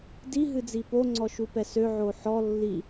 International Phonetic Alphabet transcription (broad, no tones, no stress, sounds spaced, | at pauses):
d i ɦ ɨ d͡z i p o ŋ͡ǀ ɔ ʃ u p ɛ s ø ʕ o ħ ɔ lː i